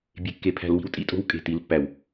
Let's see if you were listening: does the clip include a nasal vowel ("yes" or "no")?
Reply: no